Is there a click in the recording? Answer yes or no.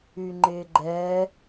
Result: yes